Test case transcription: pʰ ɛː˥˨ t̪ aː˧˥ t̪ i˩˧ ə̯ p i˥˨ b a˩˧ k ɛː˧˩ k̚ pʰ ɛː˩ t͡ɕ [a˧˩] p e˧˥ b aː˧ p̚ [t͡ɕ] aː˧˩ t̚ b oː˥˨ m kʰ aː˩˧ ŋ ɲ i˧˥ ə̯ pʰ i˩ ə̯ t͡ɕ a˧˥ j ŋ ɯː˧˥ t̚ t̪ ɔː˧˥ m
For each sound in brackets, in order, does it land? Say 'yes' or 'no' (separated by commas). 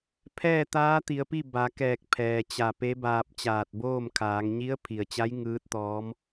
yes, yes